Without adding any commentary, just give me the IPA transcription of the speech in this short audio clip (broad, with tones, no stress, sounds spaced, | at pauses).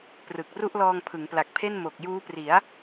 p r ɯ˨˩ k̚ r u˥˩ ʔ l ɔː˧ ŋ pʰ ɯ˩˦ ŋ p l a˨˩ k̚ pʰ e˥˩ n m o˨˩ k̚ j uː˦˥ p r i˩˦ a̯